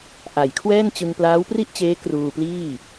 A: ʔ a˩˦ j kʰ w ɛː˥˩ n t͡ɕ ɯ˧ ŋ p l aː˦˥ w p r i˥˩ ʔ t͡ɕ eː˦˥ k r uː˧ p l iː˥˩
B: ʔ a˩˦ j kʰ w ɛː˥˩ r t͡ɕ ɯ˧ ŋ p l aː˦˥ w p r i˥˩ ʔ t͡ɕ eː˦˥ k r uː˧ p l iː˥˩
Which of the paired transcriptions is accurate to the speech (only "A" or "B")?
A